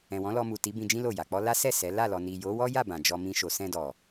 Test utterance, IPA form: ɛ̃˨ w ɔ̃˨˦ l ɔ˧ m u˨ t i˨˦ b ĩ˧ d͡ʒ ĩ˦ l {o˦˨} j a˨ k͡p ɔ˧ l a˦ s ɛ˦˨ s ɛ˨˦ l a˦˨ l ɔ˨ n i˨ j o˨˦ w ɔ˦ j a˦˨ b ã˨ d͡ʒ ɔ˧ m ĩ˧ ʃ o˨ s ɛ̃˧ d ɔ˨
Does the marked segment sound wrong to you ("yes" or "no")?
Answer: no